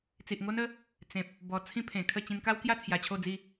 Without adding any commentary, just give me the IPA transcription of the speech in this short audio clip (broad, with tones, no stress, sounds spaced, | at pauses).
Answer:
t͡s i˨ ʔ ŋ o˦ n ə˦ | t͡s ẽ˨ p̚ | b ɔ˨˩ t͡sʰ ĩ˦ pʰ ẽ˨˩ kʰ ə˥˧ t͡ɕ ĩ˧ n k a˦ w k j a˥˧ t͡sʰ j a˧ t͡ɕʰ o˥˧ d͡z i˥˧